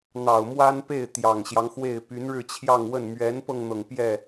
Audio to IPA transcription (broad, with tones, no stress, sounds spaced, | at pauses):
n̪ ɑ˨˩ ʊ̯ m w a˥ n p e˥˩ ɪ̯ t̪ j ɑ˨˩ ŋ ɕ j ɑ˦ ŋ x w e˥˩ ɪ̯ p y˧˥ n ɻ ɻ̩˥˧ t͡ɕʰ j ɑ˥˧ ŋ w ə˥˩ n m ɥ ɛ˧˥ n p ɤ˧ ŋ n̪ ɤ˩ ŋ p j ɛ˥˩